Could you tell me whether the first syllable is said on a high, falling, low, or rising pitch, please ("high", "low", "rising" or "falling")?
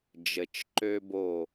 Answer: low